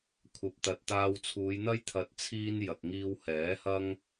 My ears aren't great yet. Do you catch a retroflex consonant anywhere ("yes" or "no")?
no